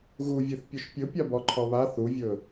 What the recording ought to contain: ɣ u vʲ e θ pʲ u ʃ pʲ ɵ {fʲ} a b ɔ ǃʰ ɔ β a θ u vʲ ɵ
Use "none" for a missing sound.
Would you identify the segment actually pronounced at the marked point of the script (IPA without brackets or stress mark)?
pʲ